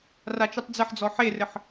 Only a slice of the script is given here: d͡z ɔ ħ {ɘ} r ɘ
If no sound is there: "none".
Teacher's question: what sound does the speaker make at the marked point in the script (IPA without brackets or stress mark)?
e